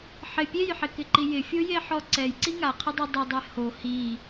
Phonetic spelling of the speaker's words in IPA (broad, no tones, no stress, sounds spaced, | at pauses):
ħ ɪ pʲ e j ħ ɪ k ɪ ǃ i j ɪ fʲ o j e ħ ɔ ǀ ɛ j ǀ i ŋ a qʰ ɪ dˤ ɛ dˤ ɪ dˤ ɛ h o h i